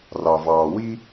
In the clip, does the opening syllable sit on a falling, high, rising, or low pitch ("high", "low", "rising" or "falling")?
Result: low